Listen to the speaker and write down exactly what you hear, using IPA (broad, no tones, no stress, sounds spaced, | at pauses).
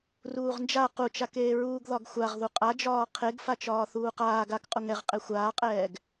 r uː ʁ n d͡ʒ a q u t͡ʃ a k eː ɹ uː ɡ ð ɒ ɡ xʷ a ʁ ð u qʼ a d͡ʒ ɒː qʰ e ɡ f a t͡ʃ ɒː θ uː q aː ɡ a k qʼ u ŋ ɛ ʁ qʼ e xʷ aː qʼ ɛː ɡ